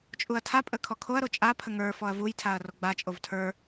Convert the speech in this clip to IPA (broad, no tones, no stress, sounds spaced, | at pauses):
t͡ʃʼ u ɐ̯ tʰ a pʼ ə kʰ ɔ kʰ o ɐ̯ ɾ o t͡ʃʼ a pʰ ə ŋ ə˞ f ɔ ɐ̯ v u j tʰ a ɐ̯ r o ɡ͡b a t͡ʃʼ o v tʰ ə˞